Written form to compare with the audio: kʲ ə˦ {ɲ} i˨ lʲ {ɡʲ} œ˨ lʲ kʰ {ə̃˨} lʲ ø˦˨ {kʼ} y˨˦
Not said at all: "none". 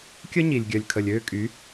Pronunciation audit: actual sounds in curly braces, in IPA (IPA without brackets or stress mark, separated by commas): ɲ, ɡʲ, ə˨, kʼ